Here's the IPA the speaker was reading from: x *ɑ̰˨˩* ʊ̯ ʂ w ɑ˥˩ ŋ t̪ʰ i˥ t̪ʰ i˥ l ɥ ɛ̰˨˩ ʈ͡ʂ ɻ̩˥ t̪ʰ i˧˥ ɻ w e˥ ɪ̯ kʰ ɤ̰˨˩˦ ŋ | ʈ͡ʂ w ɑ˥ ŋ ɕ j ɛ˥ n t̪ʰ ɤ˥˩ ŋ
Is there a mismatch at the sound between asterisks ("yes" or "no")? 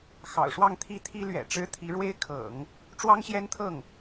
no